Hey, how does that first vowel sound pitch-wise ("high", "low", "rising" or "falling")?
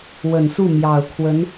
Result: low